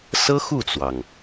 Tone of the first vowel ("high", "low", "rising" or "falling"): high